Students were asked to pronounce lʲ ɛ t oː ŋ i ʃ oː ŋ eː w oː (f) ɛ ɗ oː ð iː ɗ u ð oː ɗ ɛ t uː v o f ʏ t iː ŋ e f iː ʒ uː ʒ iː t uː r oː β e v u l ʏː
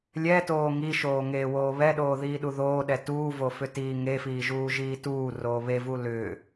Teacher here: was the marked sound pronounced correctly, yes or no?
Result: no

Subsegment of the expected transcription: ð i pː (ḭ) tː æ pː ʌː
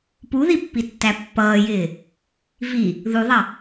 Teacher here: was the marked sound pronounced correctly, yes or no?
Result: no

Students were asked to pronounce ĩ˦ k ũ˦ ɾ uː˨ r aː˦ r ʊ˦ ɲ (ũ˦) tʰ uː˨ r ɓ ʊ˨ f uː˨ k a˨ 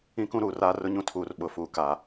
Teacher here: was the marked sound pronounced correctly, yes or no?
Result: yes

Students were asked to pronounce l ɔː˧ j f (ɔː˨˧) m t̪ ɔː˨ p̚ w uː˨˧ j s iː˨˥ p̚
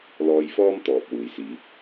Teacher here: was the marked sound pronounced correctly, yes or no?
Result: no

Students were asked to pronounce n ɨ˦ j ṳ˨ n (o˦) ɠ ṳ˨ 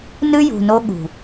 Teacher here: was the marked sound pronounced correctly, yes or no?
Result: yes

